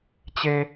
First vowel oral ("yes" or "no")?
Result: yes